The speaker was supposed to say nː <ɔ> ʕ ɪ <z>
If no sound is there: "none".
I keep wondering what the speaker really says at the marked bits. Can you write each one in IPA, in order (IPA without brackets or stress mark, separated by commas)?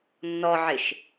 ɔ, ʃ